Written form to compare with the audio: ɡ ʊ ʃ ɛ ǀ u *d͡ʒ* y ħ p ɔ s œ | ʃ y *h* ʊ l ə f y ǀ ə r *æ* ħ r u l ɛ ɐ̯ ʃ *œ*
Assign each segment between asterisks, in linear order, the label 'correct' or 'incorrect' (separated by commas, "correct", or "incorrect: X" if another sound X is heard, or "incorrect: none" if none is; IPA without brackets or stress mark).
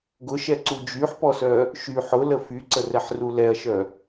correct, incorrect: ħ, incorrect: ɛ, correct